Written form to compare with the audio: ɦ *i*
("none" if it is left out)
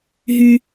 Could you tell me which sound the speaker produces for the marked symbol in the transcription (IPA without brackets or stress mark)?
y